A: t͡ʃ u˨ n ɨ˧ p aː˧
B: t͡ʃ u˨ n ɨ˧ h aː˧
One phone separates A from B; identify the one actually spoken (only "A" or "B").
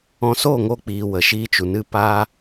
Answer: A